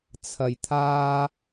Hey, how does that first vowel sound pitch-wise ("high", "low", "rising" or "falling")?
low